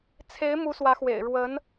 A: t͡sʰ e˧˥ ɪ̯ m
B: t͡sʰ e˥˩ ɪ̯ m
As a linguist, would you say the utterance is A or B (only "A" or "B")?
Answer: A